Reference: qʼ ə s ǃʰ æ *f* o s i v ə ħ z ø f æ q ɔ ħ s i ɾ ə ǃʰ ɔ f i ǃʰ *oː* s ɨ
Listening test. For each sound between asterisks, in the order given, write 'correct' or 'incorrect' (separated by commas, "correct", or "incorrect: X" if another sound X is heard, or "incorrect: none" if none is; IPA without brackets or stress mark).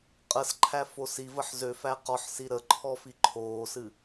correct, correct